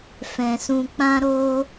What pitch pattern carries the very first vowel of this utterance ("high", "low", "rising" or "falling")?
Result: low